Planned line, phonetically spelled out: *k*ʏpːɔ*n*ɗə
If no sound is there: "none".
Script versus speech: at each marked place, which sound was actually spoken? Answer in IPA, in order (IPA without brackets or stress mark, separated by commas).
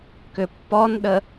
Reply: k, n